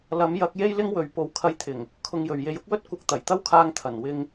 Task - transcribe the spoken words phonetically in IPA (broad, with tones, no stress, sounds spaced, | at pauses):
l ɐ˨˥ m j ɐ˨˥ k̚ j e˥ j l ɪ˥ ŋ w ɵ˨ ɥ p o˨˧ w kʰ ɐ˧ j t̪ʰ ɪ˨˩ ŋ | kʰ ʊ˧ ŋ j ɵ˨ ɥ j e˨˧ j ʊ˥ k̚ w ɵ˥ t̚ kʷ ɐ˨˥ k̚ t̪ ɐ˨˩ j t̪ ɐ˥ w kʰ aː˧ ŋ t̪ʰ ɐ˨˩ n w ɪ˧ ŋ